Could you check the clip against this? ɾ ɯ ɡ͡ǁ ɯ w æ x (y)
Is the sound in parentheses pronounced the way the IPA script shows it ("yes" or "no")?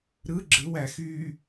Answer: yes